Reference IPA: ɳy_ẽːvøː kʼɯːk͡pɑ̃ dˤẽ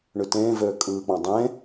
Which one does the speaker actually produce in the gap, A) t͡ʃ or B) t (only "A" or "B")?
B